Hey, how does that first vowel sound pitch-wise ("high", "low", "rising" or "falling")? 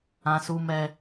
low